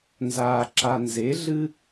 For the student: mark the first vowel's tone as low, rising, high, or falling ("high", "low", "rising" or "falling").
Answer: low